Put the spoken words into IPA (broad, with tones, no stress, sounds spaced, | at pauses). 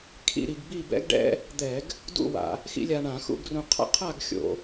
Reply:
kʰ ḭ˥˧ ɾ i˧ ɡ b i˥˧ b ɛ̰˥ ɡ ɖ ɛ̰˥ | d̪ ɛ˧˩˧ ɡ | d ṵ˥˧ w a̰˧˩˧ | x ḭ˥ lʲ a˧ ɳ ã˧˩˧ x ṵ˥˧ ɡ r ũ˧ qʰ a̰˥ qʰ a˥˧ ɡ xʲ o̰˧˩˧